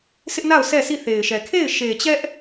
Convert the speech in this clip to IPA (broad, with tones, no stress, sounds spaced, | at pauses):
s ɪ˦ ʔ n a˦˨ ʊ̯ s ɛ˦˨ sʰ i˦˨ θ e˨ ɪ̯ ʃ ɛ˨ kʰ e˦˨ ɪ̯ ʃ e˨ t͡ɕ ɛ˦ ʔ